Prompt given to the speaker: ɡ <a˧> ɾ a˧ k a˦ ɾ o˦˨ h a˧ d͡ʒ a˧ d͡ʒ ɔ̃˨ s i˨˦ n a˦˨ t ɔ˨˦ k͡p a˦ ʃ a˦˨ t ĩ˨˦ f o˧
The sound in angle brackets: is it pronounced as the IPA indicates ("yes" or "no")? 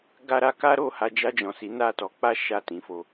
yes